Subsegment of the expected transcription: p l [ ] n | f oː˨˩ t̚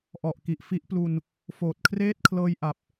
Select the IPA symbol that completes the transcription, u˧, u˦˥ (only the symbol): u˧